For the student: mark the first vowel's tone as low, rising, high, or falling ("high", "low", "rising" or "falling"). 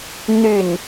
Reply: falling